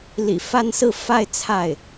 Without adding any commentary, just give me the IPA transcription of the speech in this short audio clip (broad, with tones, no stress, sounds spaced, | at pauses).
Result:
l ḭ˨˩ f a˥˧ n s ɹ̩˥˧ f a˥˧ ɪ̯ t͡sʰ a˥˩ ɪ̯